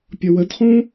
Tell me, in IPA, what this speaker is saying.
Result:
pʲʌwədχũ

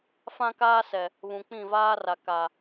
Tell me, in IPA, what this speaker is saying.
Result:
fã˦kaː˦sɛ˨ | βũ˨k͡pĩ˦˨vaː˦ra˨ ka˨

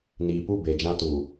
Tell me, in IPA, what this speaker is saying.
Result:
niː˨pu˦˨ be˨d͡ʒã˦tuː˨

